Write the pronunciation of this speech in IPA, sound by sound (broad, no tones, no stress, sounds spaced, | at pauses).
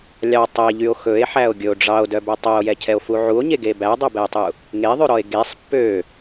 lʲ ɑ tˤ ɛ ʎ y o̯ x ɵ e̯ ħ æ o̯ ɡʲ ɵ o̯ ɖ͡ʐ ɑ o̯ d œ b œ tˤ œ o̯ j ɛ cʰ ɛ o̯ f u ʕ u o̯ ɲ e ɡ e b æ dˤ o b ɛ e̯ tˤ u | ŋ e ðˤ ʉ ɾ ɔ e̯ ɡ e sˤ pː ø